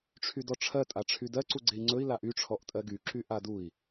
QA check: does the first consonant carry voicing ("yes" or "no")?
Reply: no